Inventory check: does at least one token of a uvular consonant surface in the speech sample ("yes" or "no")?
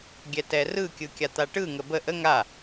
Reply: no